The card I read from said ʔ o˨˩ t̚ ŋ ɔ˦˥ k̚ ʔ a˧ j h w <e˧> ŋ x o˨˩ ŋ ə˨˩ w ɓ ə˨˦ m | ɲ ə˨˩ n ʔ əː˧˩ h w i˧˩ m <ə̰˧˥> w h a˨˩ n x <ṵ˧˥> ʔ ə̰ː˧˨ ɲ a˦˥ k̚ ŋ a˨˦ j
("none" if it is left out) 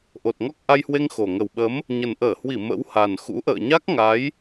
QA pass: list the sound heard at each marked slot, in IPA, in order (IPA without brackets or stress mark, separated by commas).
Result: e˧, ə̰˧˥, ṵ˧˥